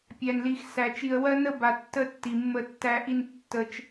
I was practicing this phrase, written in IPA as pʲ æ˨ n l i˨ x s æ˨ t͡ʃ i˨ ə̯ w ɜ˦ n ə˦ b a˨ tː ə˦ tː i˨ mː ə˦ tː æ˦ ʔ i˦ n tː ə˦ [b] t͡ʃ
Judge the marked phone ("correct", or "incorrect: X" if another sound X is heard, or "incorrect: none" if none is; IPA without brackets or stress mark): incorrect: none